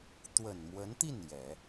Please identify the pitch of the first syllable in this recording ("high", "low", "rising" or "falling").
low